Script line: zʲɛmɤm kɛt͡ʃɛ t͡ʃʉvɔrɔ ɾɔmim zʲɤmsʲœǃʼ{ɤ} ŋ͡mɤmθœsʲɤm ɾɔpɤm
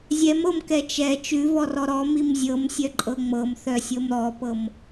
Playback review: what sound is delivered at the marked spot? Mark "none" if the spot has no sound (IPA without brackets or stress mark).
ɤ